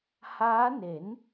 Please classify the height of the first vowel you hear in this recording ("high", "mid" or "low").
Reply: low